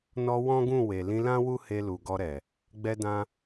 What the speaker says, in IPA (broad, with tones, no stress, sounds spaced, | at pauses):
n ɔ˧ w ɔ̃˦ ɡ ũ˦˨ w e˨ l ĩ˧ l ã˦ w u˦ h e˧ l u˨ ɡ ɔ˧ ɾ ɛ˨ | ɡ͡b ɛ˦ d ã˦